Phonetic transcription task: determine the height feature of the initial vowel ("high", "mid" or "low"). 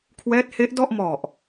mid